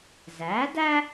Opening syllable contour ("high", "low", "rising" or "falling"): rising